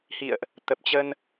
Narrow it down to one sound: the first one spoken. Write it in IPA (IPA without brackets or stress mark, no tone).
h